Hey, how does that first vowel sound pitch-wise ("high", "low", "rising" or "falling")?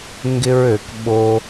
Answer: high